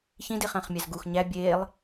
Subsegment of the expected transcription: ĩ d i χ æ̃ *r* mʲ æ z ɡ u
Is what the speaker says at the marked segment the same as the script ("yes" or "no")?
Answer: no